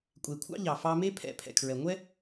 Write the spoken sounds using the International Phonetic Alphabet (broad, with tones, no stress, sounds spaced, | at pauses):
kʷʼ e˨ kʷʰ ɑ̰˥ ʎ ɑ˨ f ɑ˦ m e˥ pʰ ɛ̰˨ pʰ ɛ̰˨ kʰ ɹ ɛ˨ ŋʷ ɛ˥